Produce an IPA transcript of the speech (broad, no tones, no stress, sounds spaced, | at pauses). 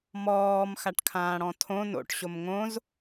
m ɔː m x a ʈ kʰ ãː ɽ ɔ̃ tʰ õ n o̰ ʈ ɕ o m ŋ õ z